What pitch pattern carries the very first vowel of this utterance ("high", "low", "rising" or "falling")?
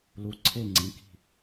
rising